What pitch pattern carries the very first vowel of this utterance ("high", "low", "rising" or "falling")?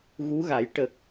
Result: rising